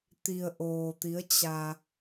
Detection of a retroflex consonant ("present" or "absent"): absent